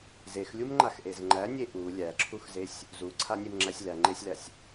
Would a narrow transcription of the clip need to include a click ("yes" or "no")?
yes